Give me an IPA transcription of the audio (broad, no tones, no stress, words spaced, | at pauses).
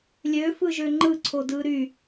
lʲøfɯʒø ŋ͡ǃɯǀʰodɯ ɾy